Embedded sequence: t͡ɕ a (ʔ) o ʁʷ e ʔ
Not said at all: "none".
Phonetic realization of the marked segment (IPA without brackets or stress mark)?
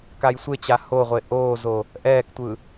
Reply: h